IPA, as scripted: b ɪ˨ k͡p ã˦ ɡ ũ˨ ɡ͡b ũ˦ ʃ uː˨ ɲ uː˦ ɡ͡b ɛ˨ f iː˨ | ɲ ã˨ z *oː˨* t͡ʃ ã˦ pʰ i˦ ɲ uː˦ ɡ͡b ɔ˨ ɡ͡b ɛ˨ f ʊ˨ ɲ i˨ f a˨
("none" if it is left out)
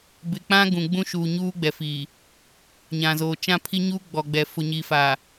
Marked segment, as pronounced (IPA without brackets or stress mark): oː˨